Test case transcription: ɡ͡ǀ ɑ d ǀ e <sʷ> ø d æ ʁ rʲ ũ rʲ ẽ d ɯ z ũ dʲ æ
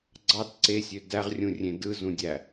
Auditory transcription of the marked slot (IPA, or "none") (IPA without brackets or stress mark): sʲ